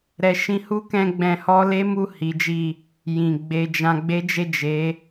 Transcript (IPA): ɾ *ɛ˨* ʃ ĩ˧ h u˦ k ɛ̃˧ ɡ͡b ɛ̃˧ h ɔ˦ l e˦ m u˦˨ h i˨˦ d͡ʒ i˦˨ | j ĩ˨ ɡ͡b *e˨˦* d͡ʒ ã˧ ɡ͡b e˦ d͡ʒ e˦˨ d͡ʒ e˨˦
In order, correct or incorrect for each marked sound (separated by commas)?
correct, incorrect